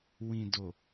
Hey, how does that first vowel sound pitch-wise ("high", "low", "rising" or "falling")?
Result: low